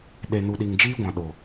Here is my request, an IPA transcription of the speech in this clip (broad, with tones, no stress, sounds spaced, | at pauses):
ɗ e˨ n u˨ ɗ i˨ ŋ d͡ʒ iː˦ ɡʷ ã˨ ɗ o˨